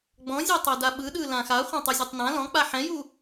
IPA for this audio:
ɡ͡b ɔ̃ zʲ ɤ tˤ o d a ɓ ɯ ɗ ɯ l ã x a χʷ ã tˤ u zʲ ɛ tˤ n ã l ɔ̃ k͡p a ħ ɛ̃ j u

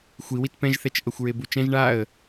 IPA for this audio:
xʷ i w i t p ɛ̃ ʒ θ ɛ t͡ʃ ʔ ɤ xʷ ɹ e b u t͡ʃ ɛ̃ ʒ ɳ a ə̯

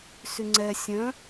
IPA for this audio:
s y ŋ͡ǀ ɛ sʲ œ̃

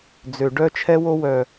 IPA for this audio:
d͡z ø˨ ɖ œ˦ t͡ʃʰ ɛ˦ w o˦ w œ˨

